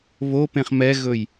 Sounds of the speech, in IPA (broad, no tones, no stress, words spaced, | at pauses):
βopẽχ mɛɣɵj